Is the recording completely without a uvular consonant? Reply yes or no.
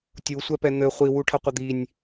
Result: no